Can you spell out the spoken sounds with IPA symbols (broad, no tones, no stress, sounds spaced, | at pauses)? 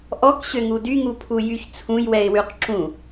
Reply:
ʔ ɔ k ɕ ø ŋ u d y ŋ u pʰ u j y ç t͡sʰ ũ j w ɛ ɪ̯ w y q ǁ ũ